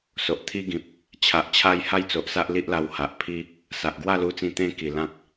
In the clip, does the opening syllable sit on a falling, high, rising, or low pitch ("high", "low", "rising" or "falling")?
low